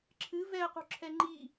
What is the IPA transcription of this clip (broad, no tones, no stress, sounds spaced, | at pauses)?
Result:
ǁʰ ɨ v ɛ ə̯ q ṳ ǁʰ ɛ ŋ͡ǃ i